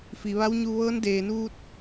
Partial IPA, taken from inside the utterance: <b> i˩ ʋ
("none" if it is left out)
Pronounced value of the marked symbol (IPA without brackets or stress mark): f